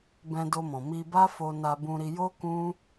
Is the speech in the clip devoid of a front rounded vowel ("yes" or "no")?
yes